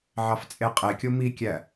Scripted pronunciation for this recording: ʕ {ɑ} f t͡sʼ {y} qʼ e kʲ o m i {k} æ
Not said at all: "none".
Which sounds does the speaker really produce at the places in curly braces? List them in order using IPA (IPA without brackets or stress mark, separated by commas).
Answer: ɑ, e, kʲ